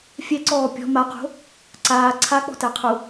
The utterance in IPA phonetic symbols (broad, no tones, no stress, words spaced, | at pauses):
fʲɛǀɔː pʲɔ̤ maqo̤ | ǀaː ǀʰak͡pɔ̤tæqʰu